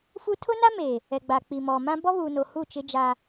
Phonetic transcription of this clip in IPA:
f u˦ tʰ ʊ˦ n a˦ m eː˨ | ɛ˨ ɡ͡b a˨ k͡p i˨ m ɔ˨ m ã˦ b ɔ˦ β uː˨ n o˨ h u˦˨ t͡ʃ ɪ˦ d͡ʒ a˦

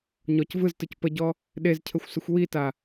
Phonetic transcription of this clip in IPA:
ɲ ɔ c v ɯ z t ɯ c p ə ɟ ɔ | ɗ e z cʰ ə xʷ s ə xʷ w i t a

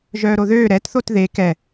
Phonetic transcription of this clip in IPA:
ʒ œː ɾ o ð øː ɾ ɛ t θ o t ð e k ɛ

